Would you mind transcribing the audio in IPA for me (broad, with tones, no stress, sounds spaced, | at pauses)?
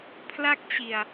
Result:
pʰ l a˥˩ k̚ t͡ɕ i˨˩ a̯